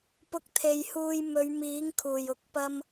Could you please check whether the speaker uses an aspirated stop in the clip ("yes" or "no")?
yes